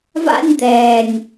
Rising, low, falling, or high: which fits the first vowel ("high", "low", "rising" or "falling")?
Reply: high